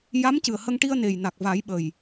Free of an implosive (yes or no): no